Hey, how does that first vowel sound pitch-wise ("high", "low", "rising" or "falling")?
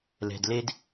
low